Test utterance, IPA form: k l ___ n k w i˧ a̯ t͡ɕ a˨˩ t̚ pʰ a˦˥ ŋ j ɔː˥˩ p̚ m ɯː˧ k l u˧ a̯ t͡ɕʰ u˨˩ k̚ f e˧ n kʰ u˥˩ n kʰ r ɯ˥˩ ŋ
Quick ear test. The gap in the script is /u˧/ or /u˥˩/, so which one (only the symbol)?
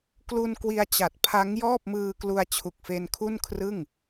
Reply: u˧